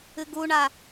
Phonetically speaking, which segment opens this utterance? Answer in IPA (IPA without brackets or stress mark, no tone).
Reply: ɨ